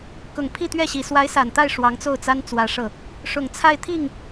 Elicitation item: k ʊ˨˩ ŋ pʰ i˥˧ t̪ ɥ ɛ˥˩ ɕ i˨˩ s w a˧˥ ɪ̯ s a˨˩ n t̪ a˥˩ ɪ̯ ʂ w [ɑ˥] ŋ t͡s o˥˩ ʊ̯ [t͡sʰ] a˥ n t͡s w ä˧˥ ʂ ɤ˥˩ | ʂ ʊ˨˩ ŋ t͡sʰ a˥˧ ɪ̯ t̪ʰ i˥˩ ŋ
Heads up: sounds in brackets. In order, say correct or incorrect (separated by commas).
incorrect, incorrect